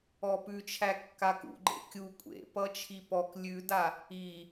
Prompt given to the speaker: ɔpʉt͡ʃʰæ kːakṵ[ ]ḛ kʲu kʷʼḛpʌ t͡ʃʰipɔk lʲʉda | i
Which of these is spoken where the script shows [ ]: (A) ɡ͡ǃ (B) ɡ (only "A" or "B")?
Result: A